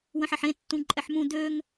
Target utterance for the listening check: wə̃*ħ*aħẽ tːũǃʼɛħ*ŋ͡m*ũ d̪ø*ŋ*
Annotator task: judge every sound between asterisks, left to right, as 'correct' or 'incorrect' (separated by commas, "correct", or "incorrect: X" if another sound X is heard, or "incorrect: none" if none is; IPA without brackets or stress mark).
correct, incorrect: m, correct